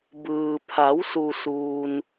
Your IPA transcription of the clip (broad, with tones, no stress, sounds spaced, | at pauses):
b ɯː˩ pʰ a˩˧ w s u˩ s uː˩ n